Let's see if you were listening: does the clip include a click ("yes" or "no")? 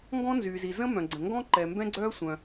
yes